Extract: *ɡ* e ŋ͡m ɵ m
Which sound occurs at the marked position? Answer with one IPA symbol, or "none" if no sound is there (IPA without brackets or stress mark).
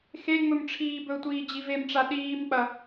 x